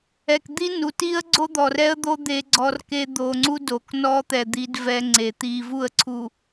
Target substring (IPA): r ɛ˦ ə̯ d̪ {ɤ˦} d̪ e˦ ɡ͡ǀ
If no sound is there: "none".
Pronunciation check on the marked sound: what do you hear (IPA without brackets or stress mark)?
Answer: o˦